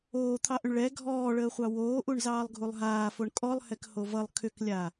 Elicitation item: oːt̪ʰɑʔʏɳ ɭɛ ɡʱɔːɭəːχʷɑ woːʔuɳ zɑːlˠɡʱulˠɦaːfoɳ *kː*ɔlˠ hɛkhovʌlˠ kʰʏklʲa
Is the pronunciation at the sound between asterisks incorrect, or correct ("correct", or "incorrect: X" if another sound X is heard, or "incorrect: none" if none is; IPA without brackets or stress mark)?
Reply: incorrect: kʼ